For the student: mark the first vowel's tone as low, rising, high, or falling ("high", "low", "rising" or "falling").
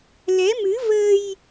rising